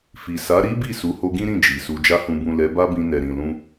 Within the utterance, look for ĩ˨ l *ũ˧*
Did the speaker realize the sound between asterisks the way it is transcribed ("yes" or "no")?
yes